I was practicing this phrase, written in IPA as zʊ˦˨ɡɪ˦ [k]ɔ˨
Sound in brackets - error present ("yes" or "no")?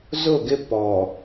yes